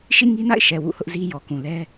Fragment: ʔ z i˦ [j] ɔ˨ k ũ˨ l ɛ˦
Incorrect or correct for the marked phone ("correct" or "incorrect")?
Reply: correct